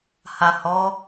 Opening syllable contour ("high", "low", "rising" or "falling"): low